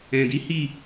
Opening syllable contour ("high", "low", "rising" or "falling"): low